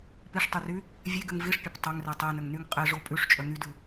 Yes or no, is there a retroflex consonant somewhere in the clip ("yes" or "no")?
yes